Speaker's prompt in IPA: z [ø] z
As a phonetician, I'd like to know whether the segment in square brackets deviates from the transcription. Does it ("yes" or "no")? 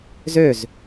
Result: no